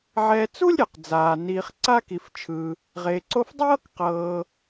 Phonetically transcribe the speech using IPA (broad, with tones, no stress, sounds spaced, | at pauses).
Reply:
ʕ ɛ˨ t͡s u˥ lʲ ɾʲ a˩ q d͡z aː˩ n iː˨ χ ǀ aː˥ k i˨ f t͡ʃʰ ɯː˨ | ʁ eː˨ ǀ o˥ f dˤ ɤː˥ k q ɤː˨